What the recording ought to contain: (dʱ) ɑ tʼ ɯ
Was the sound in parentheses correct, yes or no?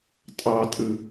no